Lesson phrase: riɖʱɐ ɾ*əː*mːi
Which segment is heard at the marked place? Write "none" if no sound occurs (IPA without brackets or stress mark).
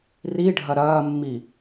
ɐː